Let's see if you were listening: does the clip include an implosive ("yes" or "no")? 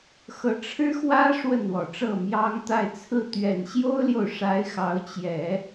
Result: no